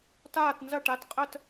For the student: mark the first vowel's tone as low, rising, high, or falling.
falling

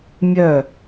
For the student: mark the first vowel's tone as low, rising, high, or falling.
falling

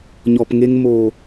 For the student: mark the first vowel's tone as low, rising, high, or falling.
low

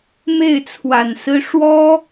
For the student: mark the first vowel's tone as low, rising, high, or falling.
falling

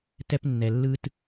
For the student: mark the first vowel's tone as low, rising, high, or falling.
high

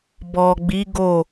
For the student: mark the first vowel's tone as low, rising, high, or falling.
low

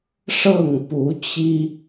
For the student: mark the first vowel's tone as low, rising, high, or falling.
falling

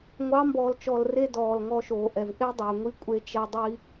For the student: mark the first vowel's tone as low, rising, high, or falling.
rising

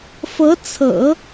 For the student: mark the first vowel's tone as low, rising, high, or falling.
rising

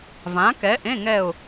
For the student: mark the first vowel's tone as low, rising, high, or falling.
rising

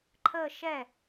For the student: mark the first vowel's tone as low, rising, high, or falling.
falling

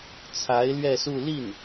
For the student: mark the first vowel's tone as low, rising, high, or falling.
rising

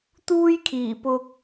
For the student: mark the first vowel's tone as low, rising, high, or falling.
high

